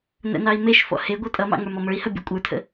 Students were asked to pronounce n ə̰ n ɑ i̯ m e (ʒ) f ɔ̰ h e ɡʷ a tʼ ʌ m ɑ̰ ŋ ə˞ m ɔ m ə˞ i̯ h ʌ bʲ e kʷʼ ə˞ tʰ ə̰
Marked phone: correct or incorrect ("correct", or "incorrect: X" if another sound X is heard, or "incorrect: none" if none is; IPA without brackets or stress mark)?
incorrect: ʃ